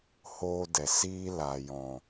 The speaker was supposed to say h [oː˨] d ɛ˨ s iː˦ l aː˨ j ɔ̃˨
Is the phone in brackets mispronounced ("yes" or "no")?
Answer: yes